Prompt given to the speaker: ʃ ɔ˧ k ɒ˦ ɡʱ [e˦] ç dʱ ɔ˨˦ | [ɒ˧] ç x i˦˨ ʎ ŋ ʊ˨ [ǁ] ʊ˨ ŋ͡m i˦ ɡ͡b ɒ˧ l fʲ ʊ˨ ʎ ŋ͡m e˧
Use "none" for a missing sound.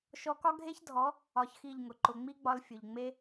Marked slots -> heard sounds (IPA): e˦, ɒ˧, ǃ

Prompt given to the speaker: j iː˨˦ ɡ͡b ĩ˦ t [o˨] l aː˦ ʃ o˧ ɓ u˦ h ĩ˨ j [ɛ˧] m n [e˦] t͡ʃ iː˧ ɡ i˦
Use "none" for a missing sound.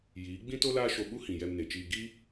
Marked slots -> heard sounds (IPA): o˦, ɛ˧, e˨

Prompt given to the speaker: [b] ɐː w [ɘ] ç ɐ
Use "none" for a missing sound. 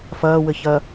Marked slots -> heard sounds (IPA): f, ɘ

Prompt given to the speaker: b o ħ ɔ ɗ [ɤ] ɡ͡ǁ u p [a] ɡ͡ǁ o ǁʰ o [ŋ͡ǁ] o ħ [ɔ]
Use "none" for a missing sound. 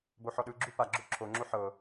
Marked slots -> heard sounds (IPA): ɯ, a, ŋ͡ǁ, ɤ

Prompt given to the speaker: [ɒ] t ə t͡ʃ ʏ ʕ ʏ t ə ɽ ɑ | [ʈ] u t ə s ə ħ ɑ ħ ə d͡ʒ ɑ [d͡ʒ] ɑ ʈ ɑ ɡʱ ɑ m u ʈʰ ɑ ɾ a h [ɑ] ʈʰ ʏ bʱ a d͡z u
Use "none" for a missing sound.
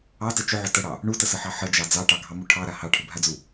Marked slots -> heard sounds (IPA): ɑ, ɳ, d͡z, ɑ

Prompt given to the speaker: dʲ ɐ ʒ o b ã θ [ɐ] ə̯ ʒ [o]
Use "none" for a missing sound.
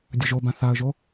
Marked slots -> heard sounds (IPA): a, o

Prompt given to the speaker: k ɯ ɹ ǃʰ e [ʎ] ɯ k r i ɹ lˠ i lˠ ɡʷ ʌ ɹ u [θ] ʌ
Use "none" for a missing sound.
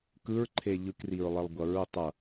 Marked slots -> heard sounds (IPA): ʎ, tˤ

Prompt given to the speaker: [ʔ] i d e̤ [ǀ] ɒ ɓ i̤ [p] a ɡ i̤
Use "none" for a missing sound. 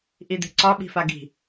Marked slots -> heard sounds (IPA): ʔ, ǀ, f

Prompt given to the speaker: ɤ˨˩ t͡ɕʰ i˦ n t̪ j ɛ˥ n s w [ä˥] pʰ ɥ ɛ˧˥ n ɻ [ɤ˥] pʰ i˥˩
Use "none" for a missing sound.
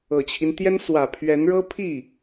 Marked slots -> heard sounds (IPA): ä˨˩, ɤ˥

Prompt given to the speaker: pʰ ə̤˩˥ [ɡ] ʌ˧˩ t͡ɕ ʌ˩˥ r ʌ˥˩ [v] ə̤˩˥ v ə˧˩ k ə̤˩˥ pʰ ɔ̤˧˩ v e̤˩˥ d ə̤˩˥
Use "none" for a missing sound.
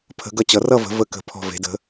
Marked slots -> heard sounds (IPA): ɡ, v

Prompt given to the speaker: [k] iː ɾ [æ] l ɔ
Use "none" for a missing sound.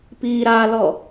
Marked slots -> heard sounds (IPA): p, a

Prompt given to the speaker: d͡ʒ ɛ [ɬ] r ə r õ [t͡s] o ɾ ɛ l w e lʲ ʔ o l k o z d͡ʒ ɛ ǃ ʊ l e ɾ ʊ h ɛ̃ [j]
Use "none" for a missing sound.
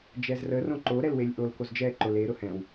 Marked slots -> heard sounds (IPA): z, ǃ, w

